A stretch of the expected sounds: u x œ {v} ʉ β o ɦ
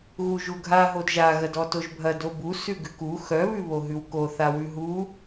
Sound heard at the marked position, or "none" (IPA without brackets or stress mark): β